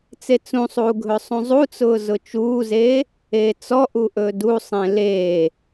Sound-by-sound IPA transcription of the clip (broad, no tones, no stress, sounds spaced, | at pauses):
t͡s e t͡s ũ sˤ uː ɡʱ ɵ sˤ ũ zˤ u t͡s ʊː z ʊ t͡ʃ uː z eː | eː t͡s ɔ ʔ u ʔ ɵ d u sˤ ẽ l eː